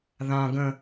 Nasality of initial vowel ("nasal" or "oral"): nasal